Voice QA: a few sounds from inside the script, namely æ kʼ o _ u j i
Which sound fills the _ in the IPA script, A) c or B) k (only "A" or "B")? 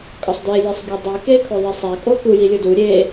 B